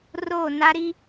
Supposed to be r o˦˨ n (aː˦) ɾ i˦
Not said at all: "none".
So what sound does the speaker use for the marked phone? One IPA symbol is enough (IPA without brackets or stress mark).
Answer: a˦